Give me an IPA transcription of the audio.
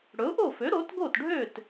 ɽɵ˩˥ʊ̯ʔo˥˩ fø˩˥ ɾo˩˥tɡo˥˩tɖʱø˥˩t

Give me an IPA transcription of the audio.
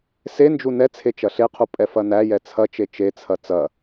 send͡ʒu nɛt͡sʰe t͡ʃɐɬeqʰu pʼɛfɐnæjɛ t͡sʰɐt͡ʃe t͡ʃet͡sʰɐ t͡sɐ

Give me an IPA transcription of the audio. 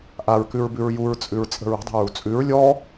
ʔaɹkʉɹbʉɹ juɹt͡sʼʉɹt͡sʼə̤ɹ ə̤dˤa̤ɹu t͡sʼʉɹ lʲɔ

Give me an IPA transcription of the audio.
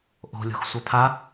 ʔo̤lʲo̤x sʷapʰa

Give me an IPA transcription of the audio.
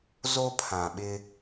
zo˦pʰã˨ɓɪ˦

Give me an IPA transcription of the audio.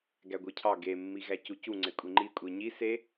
ɡæɡʷɯcʰɑ ɡemːi ɣæcucu ŋ͡ǀekʷʼiŋ͡ǃi kʷʼiɲi se

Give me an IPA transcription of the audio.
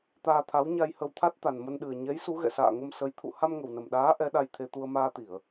t̪aː˧t̪ʰa˨˦w ɲa˧jhə˧wt̪ʰa˦˥t̚ t̪a˨˩nmə˧nɗɨ˨˩ə̯ ɲɛ˨˦j su˨˦ɣɛ̰˧˨sa̰ː˧˨ŋə˧m sə˨˦j t̪ʰṵ˧˨ ha˧mŋə˨˩wnə˨˩mɗaː˨˦ ʔɛ˨˦ɗa˧j t̪ʰe˧t̪u˧ə̯ maː˧t̪i˧˩˨ə̯

